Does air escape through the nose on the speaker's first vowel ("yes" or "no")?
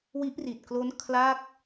no